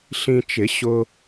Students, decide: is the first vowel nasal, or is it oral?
nasal